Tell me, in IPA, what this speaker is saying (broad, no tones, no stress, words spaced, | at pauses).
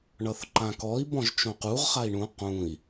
ɳʌθǃãkɔi̯ bɔ̃ʒt͡ʃõquʁ χai̯ɳũ qũi̯